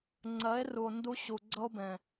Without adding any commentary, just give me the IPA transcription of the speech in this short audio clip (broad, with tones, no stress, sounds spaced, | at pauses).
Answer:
ŋ͡ǀ ɜ˨˦ e̯ r u˨ o̯ n d u˧ ɕ u˨ ɡ͡ǀ ʌ˦ o̯ b ɛ̃˨